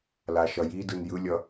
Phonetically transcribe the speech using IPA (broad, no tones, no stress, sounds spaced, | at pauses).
l a ʃ ʌ j i d ɯ n j ɯ lʲ ʌ